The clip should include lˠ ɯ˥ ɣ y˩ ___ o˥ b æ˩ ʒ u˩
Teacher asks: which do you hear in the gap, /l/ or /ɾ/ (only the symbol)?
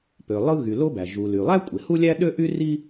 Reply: l